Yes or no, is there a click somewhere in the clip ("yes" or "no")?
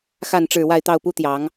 no